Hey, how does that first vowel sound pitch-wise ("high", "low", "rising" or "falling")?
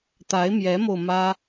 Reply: rising